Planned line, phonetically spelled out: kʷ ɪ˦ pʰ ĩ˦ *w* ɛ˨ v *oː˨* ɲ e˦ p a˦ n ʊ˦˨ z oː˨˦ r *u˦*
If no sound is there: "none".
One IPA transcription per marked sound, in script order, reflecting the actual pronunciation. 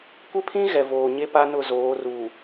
ɣ, oː˨, u˨

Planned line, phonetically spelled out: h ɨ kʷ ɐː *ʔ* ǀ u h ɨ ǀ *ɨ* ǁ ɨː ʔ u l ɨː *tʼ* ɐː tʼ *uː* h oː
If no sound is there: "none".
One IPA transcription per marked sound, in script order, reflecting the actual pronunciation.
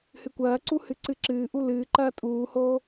none, ɨ, ǃ, uː

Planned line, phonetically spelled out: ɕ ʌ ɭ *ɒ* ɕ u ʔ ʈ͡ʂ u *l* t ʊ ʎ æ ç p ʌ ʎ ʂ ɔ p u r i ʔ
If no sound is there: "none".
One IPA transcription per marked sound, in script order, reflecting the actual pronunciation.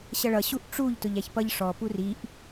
ʌ, ʎ

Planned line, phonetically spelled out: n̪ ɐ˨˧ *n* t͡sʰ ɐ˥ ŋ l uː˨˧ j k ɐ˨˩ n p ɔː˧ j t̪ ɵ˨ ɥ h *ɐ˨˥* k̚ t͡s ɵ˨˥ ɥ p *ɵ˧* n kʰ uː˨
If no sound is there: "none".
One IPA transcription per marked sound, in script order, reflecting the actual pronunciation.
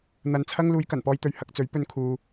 n, ɐ˧, ɵ˧

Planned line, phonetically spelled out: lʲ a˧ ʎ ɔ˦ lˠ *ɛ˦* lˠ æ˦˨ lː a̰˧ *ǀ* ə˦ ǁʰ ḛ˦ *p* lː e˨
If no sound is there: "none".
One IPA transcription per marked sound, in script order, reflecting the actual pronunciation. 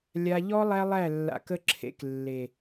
æ˦, k, k

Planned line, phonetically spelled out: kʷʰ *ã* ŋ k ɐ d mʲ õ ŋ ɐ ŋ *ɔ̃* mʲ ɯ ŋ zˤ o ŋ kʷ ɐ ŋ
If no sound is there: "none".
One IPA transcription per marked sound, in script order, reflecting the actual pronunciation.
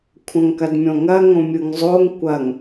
ɐ̃, õ

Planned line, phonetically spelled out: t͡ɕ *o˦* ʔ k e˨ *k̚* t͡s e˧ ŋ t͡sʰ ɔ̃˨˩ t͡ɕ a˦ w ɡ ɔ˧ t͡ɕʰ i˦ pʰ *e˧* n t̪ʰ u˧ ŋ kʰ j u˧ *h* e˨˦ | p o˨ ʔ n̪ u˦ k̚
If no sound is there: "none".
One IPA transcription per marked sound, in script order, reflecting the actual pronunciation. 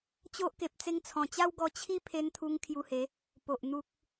o˦, p̚, e˧, h

